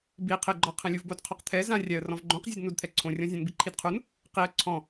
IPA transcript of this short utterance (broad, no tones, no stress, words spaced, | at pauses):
bi qʰɪɡ͡ǃɔqʰẽ lʲuvbodqʰɔqt̪ʰɛ zãrʲaə̯rɔ̃v ɡ͡ǃõqzʲʊd nudt̪ʰɛǀʰõrʲɔ̃ zʲõnbiǃʰidqʰun | qiə̯ ǀʰɔ̃